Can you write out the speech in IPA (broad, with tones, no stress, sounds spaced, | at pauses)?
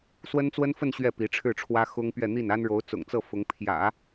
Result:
s w ə˥ n t͡s w ə˥ n f ə˥˧ n ɕ ɥ ɛ˥˩ p i˧˥ ʈ͡ʂʰ ɻ̩˥˩ ʈ͡ʂʰ w ä˥ x ʊ˥ ŋ p ɥ ɛ˥˧ n̪ i˥˩ n a˥ n ɻ o˧˥ ʊ̯ t͡s ʊ̰˨˩ ŋ t͡s ɤ˥˩ f ʊ˧˥ ŋ pʰ j ä̰˨˩˦